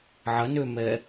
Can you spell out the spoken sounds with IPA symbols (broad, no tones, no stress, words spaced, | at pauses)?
ʕɐnømɛ